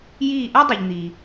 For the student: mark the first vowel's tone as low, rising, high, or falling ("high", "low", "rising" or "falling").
falling